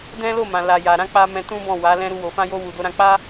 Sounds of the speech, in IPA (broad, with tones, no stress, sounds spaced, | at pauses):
d ɛ̃˦ l o˦˨ m ã˨ l a˨ j a˨ ɾ ã˧ k͡p a˧ m ɛ̃˧ t ũ˦ b ɔ̃˦˨ w a˨˦ l ɛ̃˦ ɾ u˧ w o˨ f ã˧ j o˧ w u˨ d o˧ ɾ ã˧ k͡p a˦